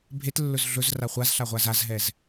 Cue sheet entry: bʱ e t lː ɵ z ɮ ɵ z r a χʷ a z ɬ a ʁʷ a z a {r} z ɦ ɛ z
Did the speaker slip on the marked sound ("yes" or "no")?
yes